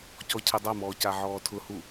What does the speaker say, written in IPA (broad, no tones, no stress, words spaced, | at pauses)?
cɔcʰɛdˤamɔː caʕɔːtʰʊhu